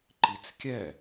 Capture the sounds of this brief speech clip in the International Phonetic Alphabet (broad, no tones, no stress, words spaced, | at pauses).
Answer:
ǃit͡skʲɛ